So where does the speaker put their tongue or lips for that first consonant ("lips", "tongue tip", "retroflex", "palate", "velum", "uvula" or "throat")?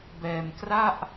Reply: lips